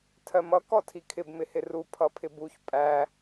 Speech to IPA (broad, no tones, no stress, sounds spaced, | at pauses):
tʰ ɜ m ʌ k ɔ tʰ i kʰ ɪ b m ɪ h ɪ r u pʰ ʌ pʰ ɪ b u ç pʼ æ